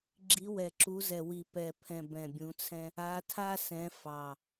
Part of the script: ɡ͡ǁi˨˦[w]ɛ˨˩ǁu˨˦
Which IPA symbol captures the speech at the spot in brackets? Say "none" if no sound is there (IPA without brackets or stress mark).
w